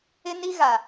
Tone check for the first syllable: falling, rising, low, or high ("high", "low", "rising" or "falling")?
high